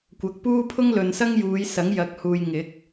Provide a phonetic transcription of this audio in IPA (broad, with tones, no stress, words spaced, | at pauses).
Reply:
kʷɐ˨˥k̚puː˥ pʰʊ˥ŋlɵ˨n sɐ˥ŋjuː˨˧j sɐ˨˥ŋjɐ˨˥k̚huː˨j ŋɪ˨˥k̚